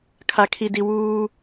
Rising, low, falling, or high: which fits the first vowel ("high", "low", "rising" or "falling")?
low